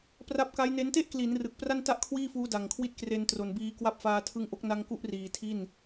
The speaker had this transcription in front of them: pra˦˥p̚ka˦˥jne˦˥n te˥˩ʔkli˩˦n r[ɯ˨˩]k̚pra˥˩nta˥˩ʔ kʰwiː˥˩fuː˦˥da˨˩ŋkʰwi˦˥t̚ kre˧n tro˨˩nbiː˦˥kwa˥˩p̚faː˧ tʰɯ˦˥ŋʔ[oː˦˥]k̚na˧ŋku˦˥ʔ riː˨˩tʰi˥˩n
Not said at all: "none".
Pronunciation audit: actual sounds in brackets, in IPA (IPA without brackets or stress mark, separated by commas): ɯ˨˩, o˦˥